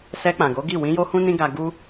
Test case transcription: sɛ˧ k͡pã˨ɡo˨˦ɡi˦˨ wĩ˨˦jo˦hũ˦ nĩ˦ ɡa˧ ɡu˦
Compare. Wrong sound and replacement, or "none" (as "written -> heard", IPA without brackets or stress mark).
none